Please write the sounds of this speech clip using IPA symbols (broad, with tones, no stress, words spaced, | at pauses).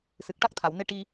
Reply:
sɨ˨˩k̚ʈa˦˥k̚t̪ʰa˨˩˨wne˧ ʈi˧